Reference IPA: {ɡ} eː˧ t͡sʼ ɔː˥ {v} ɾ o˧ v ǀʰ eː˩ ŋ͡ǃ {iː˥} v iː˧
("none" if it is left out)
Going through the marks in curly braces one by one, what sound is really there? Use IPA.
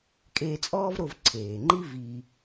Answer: kʼ, v, i˥

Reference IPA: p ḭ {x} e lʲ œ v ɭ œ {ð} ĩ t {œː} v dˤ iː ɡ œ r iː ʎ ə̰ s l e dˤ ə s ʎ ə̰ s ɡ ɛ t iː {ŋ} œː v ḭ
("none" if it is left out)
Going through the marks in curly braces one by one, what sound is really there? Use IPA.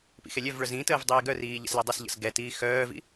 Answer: x, z, əː, x

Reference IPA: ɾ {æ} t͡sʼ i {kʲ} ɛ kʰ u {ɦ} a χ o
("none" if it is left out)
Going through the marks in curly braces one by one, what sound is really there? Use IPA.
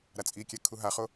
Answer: a, kʲ, ɦ

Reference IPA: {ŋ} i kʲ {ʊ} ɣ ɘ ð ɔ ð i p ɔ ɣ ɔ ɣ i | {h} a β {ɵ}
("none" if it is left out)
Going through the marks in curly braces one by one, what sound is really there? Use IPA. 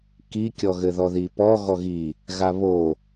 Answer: k, ɔ, ɣ, o

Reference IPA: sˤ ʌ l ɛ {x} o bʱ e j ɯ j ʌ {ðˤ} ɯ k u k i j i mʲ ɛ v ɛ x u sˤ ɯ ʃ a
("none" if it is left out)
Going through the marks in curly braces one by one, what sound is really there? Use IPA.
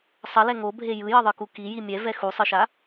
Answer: ŋ, ðˤ

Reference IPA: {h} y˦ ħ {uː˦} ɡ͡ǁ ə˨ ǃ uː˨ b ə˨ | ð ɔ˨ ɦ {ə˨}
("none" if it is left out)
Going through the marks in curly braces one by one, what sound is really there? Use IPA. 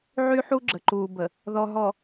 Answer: ʕ, u˦, ɔ˨

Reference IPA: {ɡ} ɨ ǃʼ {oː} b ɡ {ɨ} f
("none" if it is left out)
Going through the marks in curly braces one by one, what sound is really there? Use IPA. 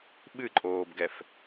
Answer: ɓ, oː, ɛ

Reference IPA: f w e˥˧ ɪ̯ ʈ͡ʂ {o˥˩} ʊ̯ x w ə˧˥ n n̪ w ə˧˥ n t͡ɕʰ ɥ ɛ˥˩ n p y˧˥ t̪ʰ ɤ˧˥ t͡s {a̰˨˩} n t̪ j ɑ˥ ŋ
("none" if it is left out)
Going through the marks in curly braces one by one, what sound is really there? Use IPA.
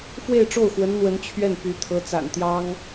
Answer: o˥˩, a̰˨˩

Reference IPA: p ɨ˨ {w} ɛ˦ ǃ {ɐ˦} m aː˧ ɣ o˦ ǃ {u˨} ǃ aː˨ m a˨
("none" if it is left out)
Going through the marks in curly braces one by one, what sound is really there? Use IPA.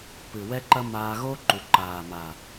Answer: w, ɐ˦, u˨

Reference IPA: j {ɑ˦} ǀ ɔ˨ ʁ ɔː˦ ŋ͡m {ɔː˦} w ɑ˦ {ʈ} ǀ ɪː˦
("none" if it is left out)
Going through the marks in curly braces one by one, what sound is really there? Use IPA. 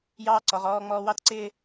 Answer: ɑː˦, ɔː˦, t

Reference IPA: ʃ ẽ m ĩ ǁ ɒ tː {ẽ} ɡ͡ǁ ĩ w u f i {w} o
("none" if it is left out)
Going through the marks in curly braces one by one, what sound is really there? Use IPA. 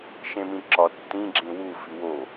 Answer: ĩ, w

